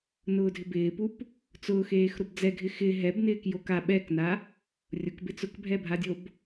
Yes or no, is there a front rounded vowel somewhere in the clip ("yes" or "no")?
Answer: no